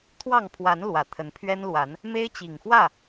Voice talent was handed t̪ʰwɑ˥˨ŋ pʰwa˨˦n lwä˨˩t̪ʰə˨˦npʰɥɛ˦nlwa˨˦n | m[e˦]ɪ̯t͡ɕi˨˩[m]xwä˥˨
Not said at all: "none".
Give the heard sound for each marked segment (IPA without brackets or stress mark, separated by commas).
e˦, ŋ